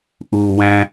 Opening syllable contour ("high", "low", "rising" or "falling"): low